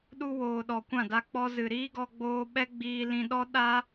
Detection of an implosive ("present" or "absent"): present